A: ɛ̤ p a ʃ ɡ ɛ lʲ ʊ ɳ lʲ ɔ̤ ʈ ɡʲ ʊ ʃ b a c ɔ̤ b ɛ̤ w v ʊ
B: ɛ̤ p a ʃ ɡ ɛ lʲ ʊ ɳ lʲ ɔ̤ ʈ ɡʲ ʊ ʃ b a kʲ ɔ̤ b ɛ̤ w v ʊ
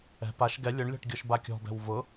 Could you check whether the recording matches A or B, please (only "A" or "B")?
B